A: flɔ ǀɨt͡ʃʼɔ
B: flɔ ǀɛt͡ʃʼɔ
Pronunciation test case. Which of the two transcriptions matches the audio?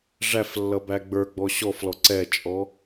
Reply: B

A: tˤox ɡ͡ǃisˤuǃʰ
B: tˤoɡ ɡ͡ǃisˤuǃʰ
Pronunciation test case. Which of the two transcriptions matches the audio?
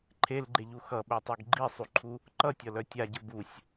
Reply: B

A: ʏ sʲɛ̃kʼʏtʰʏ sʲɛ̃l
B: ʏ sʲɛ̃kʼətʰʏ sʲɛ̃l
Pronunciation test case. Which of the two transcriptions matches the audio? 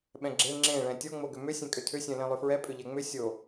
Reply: A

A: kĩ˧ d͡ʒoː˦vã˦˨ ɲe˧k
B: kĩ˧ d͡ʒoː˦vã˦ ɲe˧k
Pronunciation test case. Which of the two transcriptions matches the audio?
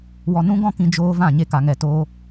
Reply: A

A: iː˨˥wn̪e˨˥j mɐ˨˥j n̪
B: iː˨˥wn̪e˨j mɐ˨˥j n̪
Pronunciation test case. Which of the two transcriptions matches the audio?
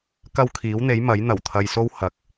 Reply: A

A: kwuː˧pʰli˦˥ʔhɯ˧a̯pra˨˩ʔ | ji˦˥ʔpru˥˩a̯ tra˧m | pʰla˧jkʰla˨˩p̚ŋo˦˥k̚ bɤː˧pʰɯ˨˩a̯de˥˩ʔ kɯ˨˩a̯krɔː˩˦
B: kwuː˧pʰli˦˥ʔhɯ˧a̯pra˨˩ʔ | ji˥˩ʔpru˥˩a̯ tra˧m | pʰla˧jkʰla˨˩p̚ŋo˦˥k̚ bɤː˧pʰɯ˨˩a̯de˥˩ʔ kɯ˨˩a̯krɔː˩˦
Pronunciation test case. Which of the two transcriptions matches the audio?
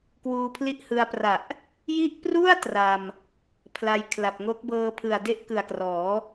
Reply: A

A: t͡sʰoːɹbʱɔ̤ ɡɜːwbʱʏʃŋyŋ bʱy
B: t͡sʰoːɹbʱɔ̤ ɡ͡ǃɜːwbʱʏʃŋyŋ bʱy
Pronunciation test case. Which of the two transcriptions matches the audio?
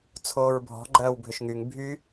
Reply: B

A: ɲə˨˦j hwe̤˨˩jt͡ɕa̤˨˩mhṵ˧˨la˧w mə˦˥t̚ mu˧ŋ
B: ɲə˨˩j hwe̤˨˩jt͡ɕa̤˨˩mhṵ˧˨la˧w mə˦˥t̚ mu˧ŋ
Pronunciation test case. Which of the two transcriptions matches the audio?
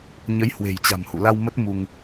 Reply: A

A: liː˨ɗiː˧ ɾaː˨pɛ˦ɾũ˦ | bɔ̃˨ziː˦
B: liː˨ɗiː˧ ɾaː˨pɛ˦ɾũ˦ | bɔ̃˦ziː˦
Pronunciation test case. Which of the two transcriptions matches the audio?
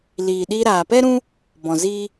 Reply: A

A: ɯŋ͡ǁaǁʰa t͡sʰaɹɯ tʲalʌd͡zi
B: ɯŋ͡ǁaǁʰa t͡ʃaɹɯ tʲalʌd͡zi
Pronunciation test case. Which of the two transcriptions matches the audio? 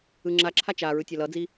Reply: B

